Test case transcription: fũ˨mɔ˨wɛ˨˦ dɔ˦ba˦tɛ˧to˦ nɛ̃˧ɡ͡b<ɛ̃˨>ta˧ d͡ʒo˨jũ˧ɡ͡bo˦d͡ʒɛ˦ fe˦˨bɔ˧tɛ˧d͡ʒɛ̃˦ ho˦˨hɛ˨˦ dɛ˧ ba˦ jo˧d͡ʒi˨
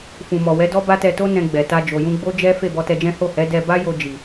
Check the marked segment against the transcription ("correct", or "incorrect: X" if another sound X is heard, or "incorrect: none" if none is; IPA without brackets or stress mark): incorrect: ɛ˨